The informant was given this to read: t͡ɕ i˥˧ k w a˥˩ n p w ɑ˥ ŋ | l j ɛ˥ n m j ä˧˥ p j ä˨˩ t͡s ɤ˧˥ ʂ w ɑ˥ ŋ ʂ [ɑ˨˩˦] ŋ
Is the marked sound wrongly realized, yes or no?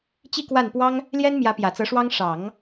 no